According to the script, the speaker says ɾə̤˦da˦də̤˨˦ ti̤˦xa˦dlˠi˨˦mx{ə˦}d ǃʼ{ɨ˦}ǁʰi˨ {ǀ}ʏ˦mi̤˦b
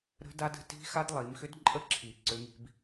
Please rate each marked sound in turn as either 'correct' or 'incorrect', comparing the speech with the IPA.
incorrect, incorrect, correct

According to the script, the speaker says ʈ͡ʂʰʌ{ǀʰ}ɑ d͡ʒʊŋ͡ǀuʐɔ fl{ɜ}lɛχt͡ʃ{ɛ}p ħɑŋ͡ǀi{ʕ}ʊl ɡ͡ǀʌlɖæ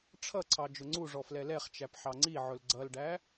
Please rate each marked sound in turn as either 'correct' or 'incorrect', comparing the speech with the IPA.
correct, incorrect, incorrect, correct

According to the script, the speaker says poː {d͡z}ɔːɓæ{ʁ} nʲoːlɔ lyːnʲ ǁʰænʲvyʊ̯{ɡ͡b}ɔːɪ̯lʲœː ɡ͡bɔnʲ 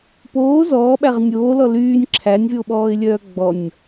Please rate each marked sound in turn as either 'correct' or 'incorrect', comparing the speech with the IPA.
incorrect, correct, incorrect

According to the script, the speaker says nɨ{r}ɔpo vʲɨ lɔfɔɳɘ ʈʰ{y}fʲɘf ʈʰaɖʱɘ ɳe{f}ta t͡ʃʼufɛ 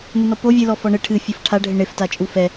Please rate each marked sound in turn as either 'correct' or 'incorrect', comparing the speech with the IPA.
incorrect, incorrect, correct

